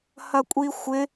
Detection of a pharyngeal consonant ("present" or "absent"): absent